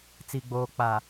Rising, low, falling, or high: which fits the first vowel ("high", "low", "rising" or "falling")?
low